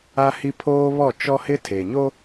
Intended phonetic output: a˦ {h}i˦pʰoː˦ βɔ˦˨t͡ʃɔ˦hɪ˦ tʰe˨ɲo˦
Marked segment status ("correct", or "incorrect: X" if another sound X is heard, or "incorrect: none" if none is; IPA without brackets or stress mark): correct